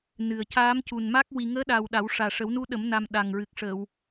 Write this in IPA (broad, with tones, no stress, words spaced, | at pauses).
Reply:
nɨ˨˩ə̯ caː˧˥mcu˨˩n ma˦˥k̚ wi˨˩ŋəː˧˥ɗa˨˩w ɗa˨˩˦w ʂaː˨˩ʂə˨˩˦wnu˧˥ɗə˨˩˦m na˧m ɗa˨˩ŋɹɨ˨˩k̚ ʂə˨˩˨w